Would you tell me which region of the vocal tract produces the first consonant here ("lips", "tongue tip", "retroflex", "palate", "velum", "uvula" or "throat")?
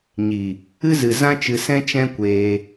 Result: palate